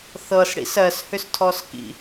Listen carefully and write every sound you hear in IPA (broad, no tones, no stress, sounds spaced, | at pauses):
θ ɤ s ɽ ḭ s ɜ s h ʏ s tʰ ɔ s k ḭ